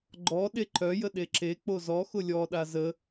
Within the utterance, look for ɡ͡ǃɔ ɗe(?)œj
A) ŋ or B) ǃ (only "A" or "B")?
B